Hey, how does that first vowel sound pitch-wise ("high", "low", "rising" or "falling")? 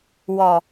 low